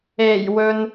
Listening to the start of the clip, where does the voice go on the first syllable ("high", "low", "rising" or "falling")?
low